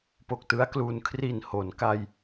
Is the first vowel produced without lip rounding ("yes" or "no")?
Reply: no